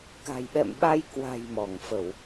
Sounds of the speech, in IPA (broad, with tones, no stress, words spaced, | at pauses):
ka̤˨˩jɓɛ̰˧˨mɓa˧j kwa̤˨˩j mɔ˧˩ŋfə˧˩˨w